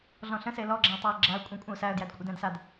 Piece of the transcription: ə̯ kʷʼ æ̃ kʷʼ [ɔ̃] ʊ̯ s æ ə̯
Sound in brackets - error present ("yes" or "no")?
yes